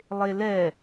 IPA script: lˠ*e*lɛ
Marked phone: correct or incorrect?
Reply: correct